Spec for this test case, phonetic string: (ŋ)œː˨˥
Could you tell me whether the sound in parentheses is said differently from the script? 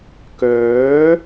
yes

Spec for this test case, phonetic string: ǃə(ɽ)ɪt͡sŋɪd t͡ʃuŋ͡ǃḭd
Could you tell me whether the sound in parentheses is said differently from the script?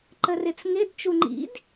yes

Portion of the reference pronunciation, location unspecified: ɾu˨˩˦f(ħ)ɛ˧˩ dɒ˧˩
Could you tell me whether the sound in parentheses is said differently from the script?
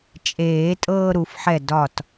no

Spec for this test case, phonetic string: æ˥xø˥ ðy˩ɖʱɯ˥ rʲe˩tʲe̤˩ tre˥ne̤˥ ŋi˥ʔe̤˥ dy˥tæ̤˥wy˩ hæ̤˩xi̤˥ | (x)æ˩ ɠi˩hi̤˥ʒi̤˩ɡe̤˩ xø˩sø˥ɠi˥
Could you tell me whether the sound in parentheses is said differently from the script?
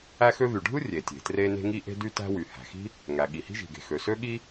yes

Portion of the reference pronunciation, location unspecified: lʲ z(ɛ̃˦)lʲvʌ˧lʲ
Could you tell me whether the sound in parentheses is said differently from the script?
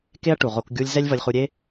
yes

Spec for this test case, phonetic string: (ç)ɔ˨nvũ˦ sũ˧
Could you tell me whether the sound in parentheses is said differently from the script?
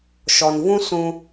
yes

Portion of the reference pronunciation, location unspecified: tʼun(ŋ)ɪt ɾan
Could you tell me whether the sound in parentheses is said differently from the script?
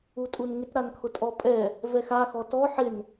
no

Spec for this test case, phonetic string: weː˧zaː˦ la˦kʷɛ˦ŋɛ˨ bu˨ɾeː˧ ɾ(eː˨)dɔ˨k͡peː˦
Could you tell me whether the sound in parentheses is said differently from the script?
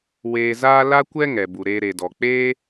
yes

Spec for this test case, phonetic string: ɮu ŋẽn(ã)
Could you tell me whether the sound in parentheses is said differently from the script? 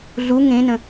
yes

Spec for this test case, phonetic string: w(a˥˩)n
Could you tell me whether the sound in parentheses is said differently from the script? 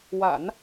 yes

